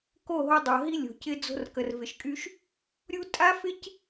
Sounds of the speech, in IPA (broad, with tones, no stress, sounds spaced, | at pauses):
k o˦˨ ɦ o˧ dˤ o˨ ɦ i˧ lʲ o̤˨ c ɪ˧ d͡z o̤˧ r k ə˨ r v ɪ˨ ʃ kʼ y˧ ʃ | ɾʲ u˦ tʼ a˦ f ɪ˦ c